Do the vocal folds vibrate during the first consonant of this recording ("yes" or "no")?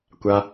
no